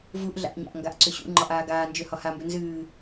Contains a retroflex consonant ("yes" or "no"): no